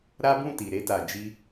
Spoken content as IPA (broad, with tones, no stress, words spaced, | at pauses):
ɾa˦ bũ˦˨ti˨ɾe˧ ta˨d͡ʒi˧